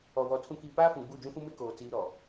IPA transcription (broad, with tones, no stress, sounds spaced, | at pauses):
ɔ˨ w ɔ˨ tʰ ũ˨ k iː˨ p aː˦ f ũ˨ ɡ͡b u˦˨ d͡ʒ ũ˦ f ũ˦ m ɪ˦ k oː˨ t͡s iː˦ ɾ ɔ˨